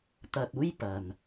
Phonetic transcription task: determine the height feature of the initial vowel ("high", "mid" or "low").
low